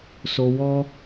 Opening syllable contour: low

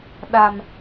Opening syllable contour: low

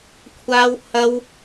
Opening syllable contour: high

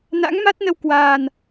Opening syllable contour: rising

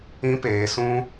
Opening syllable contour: high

